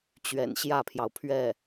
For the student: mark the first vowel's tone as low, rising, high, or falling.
low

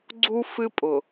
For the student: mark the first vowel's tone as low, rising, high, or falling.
high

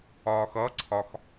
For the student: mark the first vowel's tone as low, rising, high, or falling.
low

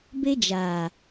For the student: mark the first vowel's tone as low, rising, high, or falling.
high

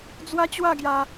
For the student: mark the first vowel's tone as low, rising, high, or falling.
high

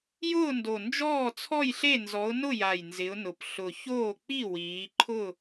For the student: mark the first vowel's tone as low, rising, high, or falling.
falling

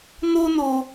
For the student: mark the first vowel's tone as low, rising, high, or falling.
high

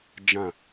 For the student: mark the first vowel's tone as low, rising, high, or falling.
falling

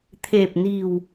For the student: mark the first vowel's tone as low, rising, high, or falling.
low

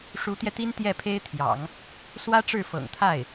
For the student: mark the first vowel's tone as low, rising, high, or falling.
rising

